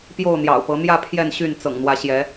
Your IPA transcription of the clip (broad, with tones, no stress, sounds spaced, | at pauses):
p j o˥˨ ʊ̯ n̪ j ɑ̰˨˩ ʊ̯ p ɤ˨˦ n̪ j ä˥˨ pʰ j ɛ˥˨ n ɕ y˥˨ n t͡s ɤ̰˨˩ ŋ n̪ w ä˨˦ ɕ j ɛ˨˦